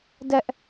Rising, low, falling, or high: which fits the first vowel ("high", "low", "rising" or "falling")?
high